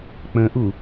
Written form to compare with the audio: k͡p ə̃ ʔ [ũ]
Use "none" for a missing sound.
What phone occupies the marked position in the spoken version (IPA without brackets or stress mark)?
u